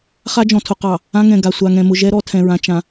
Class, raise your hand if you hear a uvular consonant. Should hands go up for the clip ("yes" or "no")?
yes